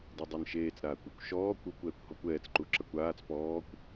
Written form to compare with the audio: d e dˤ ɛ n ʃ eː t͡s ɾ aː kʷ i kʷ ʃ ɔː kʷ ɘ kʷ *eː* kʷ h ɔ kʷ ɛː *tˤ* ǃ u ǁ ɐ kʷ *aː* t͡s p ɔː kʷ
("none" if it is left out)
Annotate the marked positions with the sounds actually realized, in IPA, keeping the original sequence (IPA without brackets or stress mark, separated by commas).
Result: ɛː, t͡s, aː